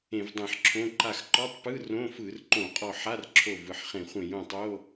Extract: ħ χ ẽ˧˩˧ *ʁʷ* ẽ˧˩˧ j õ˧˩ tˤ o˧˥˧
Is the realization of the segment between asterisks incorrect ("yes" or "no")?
yes